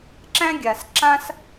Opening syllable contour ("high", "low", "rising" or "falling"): high